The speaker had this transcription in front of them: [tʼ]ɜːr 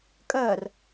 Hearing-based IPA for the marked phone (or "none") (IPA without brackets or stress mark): kʼ